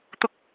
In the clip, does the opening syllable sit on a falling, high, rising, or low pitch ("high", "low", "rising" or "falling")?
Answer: high